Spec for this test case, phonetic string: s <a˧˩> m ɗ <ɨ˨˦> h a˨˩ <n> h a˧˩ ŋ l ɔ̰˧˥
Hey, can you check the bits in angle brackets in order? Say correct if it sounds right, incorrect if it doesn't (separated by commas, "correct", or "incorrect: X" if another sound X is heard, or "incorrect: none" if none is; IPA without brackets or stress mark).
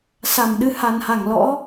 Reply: correct, incorrect: ɨ˧, correct